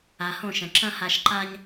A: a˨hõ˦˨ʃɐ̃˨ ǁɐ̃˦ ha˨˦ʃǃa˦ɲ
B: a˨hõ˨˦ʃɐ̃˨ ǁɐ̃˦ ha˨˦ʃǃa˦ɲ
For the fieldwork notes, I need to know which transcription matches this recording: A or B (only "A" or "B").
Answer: A